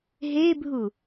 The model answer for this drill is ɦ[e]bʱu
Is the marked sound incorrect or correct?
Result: correct